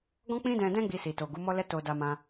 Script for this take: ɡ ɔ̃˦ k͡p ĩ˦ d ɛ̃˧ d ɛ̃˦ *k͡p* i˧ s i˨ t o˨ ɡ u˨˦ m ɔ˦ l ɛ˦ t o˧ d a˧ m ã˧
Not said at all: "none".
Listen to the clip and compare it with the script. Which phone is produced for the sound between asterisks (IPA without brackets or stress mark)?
ɡ͡b